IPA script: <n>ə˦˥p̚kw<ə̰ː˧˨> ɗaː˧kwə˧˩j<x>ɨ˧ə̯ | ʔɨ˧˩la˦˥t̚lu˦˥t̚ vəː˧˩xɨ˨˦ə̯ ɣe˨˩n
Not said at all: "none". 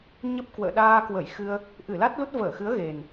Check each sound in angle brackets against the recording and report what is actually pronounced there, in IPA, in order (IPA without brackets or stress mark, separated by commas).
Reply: ɲ, ə̰ː˧˨, x